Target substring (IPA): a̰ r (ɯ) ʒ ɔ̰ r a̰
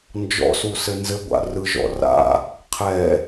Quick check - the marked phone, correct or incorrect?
correct